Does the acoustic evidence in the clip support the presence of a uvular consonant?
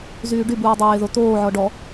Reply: no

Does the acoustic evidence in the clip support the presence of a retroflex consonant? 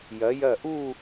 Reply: no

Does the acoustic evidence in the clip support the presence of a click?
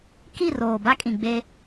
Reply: no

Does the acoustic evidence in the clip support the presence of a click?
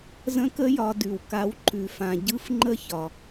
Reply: yes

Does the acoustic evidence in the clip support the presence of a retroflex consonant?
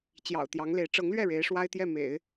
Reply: yes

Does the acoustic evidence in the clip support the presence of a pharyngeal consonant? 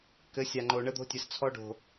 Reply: no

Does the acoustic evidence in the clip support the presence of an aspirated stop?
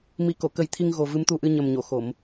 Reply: yes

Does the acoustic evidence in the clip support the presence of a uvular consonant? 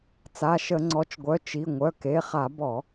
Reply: yes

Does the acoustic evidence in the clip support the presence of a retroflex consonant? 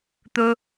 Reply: no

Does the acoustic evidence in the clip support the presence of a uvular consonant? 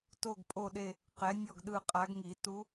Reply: yes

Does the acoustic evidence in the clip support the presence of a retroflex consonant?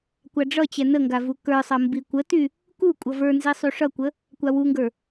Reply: yes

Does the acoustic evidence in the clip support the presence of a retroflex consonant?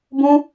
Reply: no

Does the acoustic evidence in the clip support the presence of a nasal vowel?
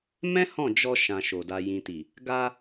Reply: yes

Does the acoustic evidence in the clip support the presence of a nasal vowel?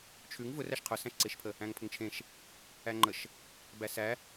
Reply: yes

